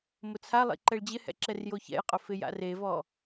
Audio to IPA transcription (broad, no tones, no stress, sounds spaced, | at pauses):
m ʊ t͡sʰ a lˠ ḭ ǃ ɛ ɭ d͡ʑ ɪ h ɛ̰ ǁ ɛ r j o ç ɛ̰ j qʼ ʊ f ɪ j a̰ r e v ɔ